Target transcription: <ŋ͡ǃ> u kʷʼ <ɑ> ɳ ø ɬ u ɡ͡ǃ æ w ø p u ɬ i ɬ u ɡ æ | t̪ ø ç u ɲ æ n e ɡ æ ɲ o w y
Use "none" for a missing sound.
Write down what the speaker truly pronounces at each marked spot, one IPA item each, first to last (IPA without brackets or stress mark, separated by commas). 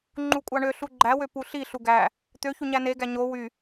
ŋ͡ǃ, ɑ